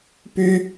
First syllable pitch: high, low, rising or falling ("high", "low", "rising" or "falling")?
high